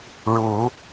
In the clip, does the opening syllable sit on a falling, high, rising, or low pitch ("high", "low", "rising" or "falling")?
rising